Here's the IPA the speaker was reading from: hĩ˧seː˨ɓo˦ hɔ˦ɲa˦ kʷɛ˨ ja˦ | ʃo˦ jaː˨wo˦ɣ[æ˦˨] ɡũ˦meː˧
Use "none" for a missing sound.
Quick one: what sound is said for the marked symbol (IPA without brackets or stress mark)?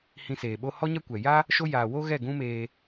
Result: ɛ˦˨